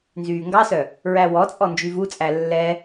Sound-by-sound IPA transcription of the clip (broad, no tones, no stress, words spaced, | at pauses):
nzyːŋɡɑsœ | ɹæwɔt͡sʼɔ nd͡ʒyvut͡sʼæ lːɛ